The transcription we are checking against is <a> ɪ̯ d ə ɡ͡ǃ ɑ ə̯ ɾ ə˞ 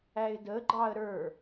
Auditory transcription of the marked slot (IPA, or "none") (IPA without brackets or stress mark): æ